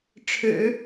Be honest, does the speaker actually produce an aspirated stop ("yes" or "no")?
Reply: yes